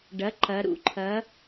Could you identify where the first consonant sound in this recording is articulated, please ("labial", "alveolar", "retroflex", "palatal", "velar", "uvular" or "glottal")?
retroflex